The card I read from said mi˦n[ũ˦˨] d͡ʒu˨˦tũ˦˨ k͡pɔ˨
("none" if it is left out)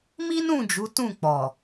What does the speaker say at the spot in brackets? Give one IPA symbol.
ũ˦˨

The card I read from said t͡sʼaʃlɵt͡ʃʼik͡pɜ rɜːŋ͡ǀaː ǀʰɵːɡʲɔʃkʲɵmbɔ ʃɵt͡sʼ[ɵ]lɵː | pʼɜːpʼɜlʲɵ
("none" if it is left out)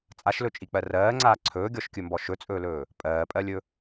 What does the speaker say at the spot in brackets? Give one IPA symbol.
ɵː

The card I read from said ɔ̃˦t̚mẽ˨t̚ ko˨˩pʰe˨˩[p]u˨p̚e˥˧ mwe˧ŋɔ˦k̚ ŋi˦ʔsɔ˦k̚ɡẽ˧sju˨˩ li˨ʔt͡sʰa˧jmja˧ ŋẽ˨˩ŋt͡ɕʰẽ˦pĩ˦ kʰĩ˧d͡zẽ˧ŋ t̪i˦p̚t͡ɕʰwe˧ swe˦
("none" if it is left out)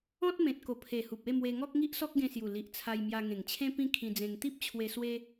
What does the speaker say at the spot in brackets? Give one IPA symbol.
h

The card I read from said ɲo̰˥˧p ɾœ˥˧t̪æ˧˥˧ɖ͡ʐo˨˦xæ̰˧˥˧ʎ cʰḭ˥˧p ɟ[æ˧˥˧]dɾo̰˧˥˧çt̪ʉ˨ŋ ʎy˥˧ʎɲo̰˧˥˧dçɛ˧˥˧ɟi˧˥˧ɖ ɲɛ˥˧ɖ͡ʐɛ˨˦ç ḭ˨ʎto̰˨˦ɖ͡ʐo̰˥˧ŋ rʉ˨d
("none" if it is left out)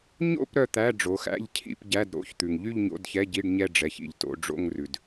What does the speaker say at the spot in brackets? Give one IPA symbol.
æ˧˥˧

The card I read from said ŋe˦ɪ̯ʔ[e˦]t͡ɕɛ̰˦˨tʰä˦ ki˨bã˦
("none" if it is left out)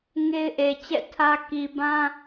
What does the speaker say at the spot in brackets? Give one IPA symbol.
e˨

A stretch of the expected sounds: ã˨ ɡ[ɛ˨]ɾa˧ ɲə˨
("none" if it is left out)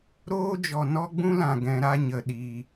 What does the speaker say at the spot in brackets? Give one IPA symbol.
ɛ̃˨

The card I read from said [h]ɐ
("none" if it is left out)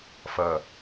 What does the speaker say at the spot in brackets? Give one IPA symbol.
f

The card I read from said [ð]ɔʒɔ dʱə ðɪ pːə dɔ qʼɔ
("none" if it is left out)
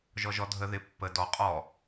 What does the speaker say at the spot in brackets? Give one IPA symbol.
ʒ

